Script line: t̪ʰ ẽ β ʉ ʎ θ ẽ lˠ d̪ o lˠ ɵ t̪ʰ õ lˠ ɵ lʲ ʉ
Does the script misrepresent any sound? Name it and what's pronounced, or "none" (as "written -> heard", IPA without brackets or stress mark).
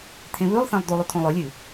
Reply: ʎ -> lˠ